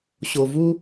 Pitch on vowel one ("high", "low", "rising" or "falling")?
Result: low